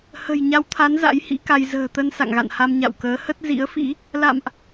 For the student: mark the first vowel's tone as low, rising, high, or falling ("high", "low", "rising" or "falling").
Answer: low